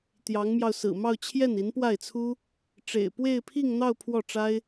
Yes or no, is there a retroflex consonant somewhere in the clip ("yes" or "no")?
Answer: yes